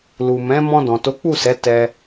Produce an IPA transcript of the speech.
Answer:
lu˨mɛ̃˨˦ mɔ̃˧ dɔ̃˨to˨˦k͡pu˦˨sɛ˨˦ tɛ˧

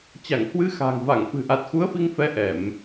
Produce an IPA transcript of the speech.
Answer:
t͡ɕa˧˩ŋhwɨ˧xa̤ː˨˩ŋva˧˩ŋ fɨ̤˨˩ʔa˨˩t̚xu˨˦ə̯ fi˧ŋfɛ˨˦ ʔɛ˧˩˨m

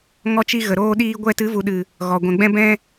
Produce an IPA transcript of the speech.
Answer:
ŋɔ˧t͡ʃi˧ ɣə˨ɾoː˧ɗiː˧ ɡʷɛ˧tɨ˨˦vu˨ɗɨ˨ | ɣɔ˨ ɡʷɛ̃˨ɡ͡bɛ̃˧ bɛ̃˧

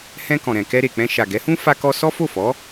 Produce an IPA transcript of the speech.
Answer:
hɛ̃˧ kɔ̃˨ɾɛ̃˨ kɛ˧ɾe˨k͡pɛ̃˧ ʃa˨ɡɛ˨˦hũ˦ fa˦kɔ˦ sɔ˦fo˦˨fɔ˨˦

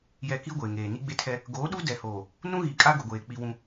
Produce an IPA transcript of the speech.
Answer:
jɛ˨ ki˦ɡʷeː˨ŋeː˨ ni˦ɡ͡be˦tʰɛ˦ | ɡoː˨˦ɗu˦ dɛ˨hoː˨ | nũ˦ɣi˨ kʼa˦ɡʊ˨ɡʷeː˨ k͡pi˦wũ˦

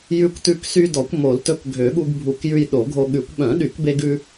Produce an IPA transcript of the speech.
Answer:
jʉ˧kʷtʉ˧ksy˧ dɔ˨˩˦kʷmo˨˩˦ltɵ˧k ɡʱø˨˩˦ɠu˧ɡbʱu˨˩˦kjʉ˧j ɗo˨˩˦ɡʱo˧ɠʉ˨˩˦kʷ ɓœ̃˨˩˦ɗy˨˩˦kbe˧ɡʉ˧

